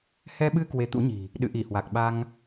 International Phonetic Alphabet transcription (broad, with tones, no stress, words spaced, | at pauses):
hɛ˧ɓɨ˧ kwe˨˦t̪ṵ˧˥ɲi̤˨˩ | ɗɨ̰˧˨ʔi˧˩hwa˨˩k̚ɓa˧ŋ